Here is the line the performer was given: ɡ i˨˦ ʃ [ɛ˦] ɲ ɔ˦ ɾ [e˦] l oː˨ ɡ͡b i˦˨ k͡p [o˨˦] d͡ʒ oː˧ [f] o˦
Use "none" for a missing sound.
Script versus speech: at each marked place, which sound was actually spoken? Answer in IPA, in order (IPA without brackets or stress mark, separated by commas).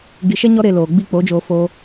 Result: ɛ˦, e˧, o˨˦, f